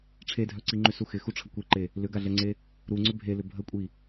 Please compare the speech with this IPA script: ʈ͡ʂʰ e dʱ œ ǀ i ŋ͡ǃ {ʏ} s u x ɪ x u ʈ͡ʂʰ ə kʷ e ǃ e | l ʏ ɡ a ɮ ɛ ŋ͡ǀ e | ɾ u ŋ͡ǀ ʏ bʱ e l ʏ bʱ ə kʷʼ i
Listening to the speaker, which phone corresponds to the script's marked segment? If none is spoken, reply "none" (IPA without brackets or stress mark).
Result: ʏ